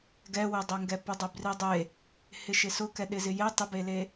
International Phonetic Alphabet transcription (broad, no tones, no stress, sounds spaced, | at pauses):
ɡ ɛ w ɪ dˤ ɛ ŋ ɡ ɛ p ʊ dˤ ʊ b r i dˤ e | h ɪ ʃ ɪ s ʊ k ɛ ɗ ɪ z ɪ j e tˤ ɪ b e l e